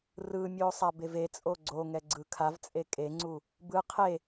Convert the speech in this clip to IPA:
rɯmʲo sˤabevet͡sʼo ɡ͡ǀoŋɛ ɡ͡ǀɯkʰavt͡sʼe kʼeŋ͡ǀu | bɯ qʰe

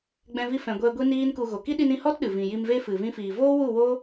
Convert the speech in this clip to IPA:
ɡ͡bɛ̃˧vi˧ fɛ̃˨ ɡʷɛ˧ ɡʷi˦niː˦nku˧ ɣo˨ ki˦ɗi˧nĩ˧hɔ˦t ɗɨ˨ vĩ˨ji˧mve˦ fɨ˨vĩ˧fiː˨ voː˦wu˦˨woː˦

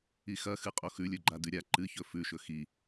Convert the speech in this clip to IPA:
ixɐxɨ qʼoxʉlʲɵ ɡ͡ǃadʉɾʲa ǃɨçɵ fʉʃɵ xi

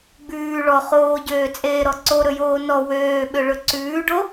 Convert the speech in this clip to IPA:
ɡ͡bʉː ɭɔ χoːɟøːt͡sʼeːɾɔ ǀoɾɵjoː nɔ wøːɓøɭɵ ǀʉːɖo

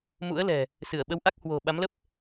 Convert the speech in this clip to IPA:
mṵ˧˥ə̯lɛ̤˨˩ | sɨ˧˩ə̯ɓə˨˦w ʔa˦˥k̚ hwo̤˨˩ ɓa˨˦mlə˦˥p̚

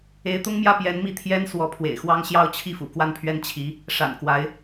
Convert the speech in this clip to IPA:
e˧˥ɪ̯t̪ʊ˥ŋmjä˥˩ pjɛ˧˥nmi˥˩ t̪ʰjɛ˥n swɔ˧˥pʰwḛ˨˩ɪ̯xwɑ˥ŋ ɕjɑ˥˧ʊ̯t͡ɕʰi˥˩ fṵ˨˩kwa˥˩npʰɥɛ˥n t͡ɕʰi˧˥ | ʂa̰˨˩n kwa˧˥ɪ̯

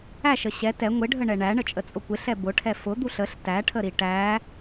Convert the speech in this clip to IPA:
æʃə ɕɛ tɛ ŋʷɪɖʱəɳɛ ɳæɳət͡ʃʼət͡sʼʊ kʷɪɬɛ bʊʈʰɛ fʊd̪uɬ əɬ tæʈʰəɾi ʈæ

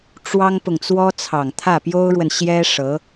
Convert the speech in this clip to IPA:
ʈ͡ʂwɑ˥ŋpʊ˨ŋ t͡swɔ˥t͡sʰɑ˨˩ŋ t̪ʰä˥˩pjo˥ʊ̯ɻwə˨n ɕjɛ˥ ʂɤ˧˥

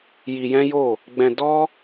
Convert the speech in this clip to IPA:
ji˧jɛ̃˦jo˦˨ | ɡ͡bɛ̃˧ dɔ˦

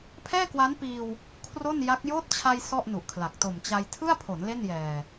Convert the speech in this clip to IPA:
pʰɛː˥˩kwa˦˥npiː˧w | kʰro˥˩nja˦˥k̚ joː˦˥t̚t͡ɕʰa˧j sɔ˥˩ʔnu˨˩ʔkʰla˨˩k̚ to˨˩mt͡ɕa˧j tʰɯ˥˩a̯pʰo˩˦n le˥˩njɛː˨˩

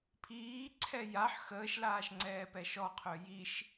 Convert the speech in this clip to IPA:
pʰiːǀʰɛ jaħ xəːʃlaːʃŋ͡ǀɛːpɛ ʃɔqʰœ jiʃ

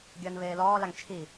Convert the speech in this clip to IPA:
ɡʲəːnβeːlɔː laŋt͡ʃʰi

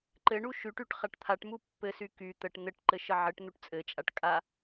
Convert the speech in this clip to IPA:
ǃɘɳu ʃyʈyʈ χaʈt̪ʰaʈmu pːɘsy ky t̪əʈ n̪ɘʈǃɘ ʃəʕɘʈn̪uʈ t͡sʼɘt͡ʃʼaʈ kʼa

